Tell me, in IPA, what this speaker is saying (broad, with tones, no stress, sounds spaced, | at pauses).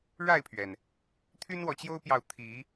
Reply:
ɻ a˥˨ ɪ̯ pʰ ɥ ɛ˩ n | t̪ʰ y˦ n w ɔ˨ t͡ɕ j o˦ ʊ̯ p j ɑ˨ ʊ̯ t̪ʰ i˨˦